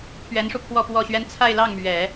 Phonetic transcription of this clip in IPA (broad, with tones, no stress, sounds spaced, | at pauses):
pʰ ɥ ɛ˧˥ n ʂ u˧ pʰ w ɔ˥˧ p w ɔ˥˩ ɕ ɥ ɛ˥ n t͡sʰ a˥˧ ɪ̯ l ɑ˥˩ ŋ m ɥ ɛ˨˩˦